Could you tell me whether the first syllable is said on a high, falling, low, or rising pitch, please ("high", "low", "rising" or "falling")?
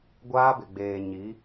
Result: high